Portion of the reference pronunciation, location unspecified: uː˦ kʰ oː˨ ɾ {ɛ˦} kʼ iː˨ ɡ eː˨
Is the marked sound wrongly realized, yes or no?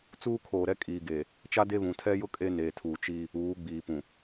no